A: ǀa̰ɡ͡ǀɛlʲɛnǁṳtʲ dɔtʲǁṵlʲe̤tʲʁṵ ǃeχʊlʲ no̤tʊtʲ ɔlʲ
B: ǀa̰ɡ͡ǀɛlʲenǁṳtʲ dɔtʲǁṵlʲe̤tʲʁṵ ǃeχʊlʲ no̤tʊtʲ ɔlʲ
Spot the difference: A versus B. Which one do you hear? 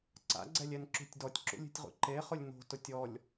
A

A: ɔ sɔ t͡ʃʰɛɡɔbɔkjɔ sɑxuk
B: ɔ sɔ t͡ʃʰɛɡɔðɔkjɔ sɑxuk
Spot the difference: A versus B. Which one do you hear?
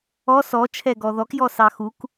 B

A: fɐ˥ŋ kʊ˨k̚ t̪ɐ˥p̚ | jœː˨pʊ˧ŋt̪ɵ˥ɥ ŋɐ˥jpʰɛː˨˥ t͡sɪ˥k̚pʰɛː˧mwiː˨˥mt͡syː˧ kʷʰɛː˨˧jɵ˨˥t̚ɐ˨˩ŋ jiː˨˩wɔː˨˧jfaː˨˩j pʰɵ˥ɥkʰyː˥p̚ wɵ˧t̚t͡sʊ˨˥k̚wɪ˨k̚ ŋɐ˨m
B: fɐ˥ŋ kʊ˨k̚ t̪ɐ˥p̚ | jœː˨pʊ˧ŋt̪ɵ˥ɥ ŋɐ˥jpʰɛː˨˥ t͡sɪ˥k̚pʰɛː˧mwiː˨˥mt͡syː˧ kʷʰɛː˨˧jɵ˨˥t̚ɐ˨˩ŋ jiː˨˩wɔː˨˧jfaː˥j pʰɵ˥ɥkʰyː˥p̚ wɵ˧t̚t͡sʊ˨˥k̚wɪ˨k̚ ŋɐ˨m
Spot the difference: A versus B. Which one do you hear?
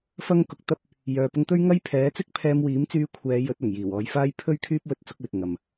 B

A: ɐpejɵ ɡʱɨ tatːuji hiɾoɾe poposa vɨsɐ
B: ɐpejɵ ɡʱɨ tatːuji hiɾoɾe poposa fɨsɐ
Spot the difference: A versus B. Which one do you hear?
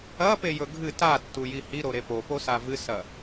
A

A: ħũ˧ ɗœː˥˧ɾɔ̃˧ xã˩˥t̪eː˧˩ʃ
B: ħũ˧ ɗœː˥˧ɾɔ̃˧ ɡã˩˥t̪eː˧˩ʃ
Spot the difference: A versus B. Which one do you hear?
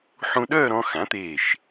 A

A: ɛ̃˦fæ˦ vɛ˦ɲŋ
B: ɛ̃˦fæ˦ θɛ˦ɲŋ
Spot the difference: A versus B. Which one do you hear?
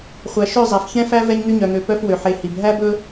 A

